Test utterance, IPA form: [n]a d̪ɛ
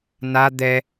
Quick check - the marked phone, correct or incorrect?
correct